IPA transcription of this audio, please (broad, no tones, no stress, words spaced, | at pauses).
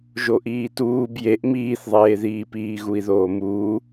ʒoʔiːtuːb jeʔ miːθðˤeːðiːpiː ɣui̯ðoːmuː